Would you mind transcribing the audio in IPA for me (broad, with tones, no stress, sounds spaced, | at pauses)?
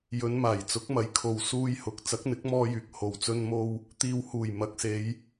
j ɵ˨˧ n m aː˨˩ j t͡s ʊ˨˥ k̚ m ɐ˨˥ j kʰ o˨ w s uː˧ j h ʊ˨˥ k̚ t͡s ɐ˨˥ k̚ n̪ ɪ˨˥ k̚ m ɔː˥ j yː˨ k̚ h o˨ w t͡s ɵ˥ n m o˥ w | t̪ iː˨ w h uː˨˩ j m ɐ˨˥ k̚ s e˨˧ j